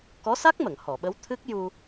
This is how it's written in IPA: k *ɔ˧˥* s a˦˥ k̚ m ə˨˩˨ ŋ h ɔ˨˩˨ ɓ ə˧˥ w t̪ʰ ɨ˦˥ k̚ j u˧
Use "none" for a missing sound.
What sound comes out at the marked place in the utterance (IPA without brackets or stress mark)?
ɔ˧˥